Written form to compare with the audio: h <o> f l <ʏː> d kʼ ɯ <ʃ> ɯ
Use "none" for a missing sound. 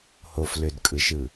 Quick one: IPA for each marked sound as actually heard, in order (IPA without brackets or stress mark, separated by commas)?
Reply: o, ʏ, ʃ